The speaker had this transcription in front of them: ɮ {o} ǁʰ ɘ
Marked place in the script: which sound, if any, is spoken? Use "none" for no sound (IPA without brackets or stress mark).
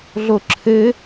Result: o